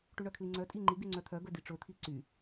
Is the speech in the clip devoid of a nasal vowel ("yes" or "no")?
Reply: yes